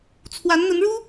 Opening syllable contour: rising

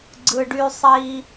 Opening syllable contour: low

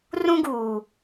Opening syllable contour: high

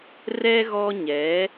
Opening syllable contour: high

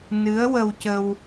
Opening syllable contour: rising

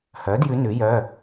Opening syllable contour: rising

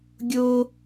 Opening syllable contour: high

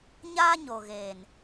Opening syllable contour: high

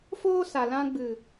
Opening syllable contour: high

